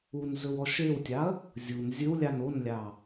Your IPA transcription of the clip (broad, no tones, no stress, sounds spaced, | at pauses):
u n z ɵ w ɔ ʃ e w tʲ ɑ ɐ̯ | zʲ u n zʲ ɵ w lʲ ɑ n o n lʲ ɑ